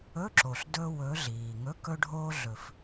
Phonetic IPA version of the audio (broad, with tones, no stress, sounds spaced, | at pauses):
ɵ˧˥˧ ǁ o˩ ɬ d ɵ˥ w ɵ˧˥ ɮ iː˩ ŋ ɵ˧˥˧ k ɵ˥ ɖʱ oː˥ ɮ ɵ˧˩ f